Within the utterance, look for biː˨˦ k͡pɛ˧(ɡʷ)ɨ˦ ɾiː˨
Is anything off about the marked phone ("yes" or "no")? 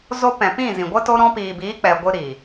no